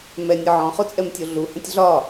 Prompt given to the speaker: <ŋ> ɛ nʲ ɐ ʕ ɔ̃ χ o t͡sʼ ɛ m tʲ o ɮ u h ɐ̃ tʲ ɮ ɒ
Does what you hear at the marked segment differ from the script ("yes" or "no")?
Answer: yes